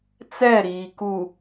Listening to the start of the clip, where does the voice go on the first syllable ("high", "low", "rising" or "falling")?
falling